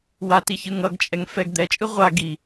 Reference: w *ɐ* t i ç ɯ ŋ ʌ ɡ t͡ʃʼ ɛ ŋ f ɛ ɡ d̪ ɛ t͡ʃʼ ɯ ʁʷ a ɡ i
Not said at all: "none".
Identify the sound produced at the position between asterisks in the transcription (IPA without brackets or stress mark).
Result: a